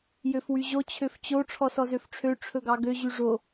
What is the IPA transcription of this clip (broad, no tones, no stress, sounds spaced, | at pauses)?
j ø f w y ʑ o t͡ɕʰ ø f t͡ɕ o ʈ͡ʂʰ ɔ s ɔ z ø f ʈ͡ʂʰ ø ʈ͡ʂʰ ɵ ɡ ɑ ɡ ø ʑ y ʐ o